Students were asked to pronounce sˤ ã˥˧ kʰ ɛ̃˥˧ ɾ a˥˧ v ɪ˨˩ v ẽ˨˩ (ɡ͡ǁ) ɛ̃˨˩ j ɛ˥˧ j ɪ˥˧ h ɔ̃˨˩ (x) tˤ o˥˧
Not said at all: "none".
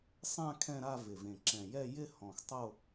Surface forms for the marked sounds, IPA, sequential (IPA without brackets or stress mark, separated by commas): ǁ, x